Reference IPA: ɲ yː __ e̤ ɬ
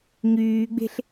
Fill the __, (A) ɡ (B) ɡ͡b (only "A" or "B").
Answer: B